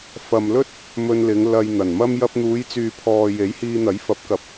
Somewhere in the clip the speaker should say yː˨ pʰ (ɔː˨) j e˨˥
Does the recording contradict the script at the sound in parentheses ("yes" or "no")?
no